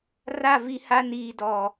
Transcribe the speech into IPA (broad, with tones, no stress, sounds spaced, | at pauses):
r a˦˨ v i˦ h a˦ n iː˦ d ɔ˦